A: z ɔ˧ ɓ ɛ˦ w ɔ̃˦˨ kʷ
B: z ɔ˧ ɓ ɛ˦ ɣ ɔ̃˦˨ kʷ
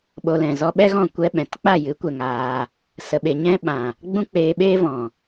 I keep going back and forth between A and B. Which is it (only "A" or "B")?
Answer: B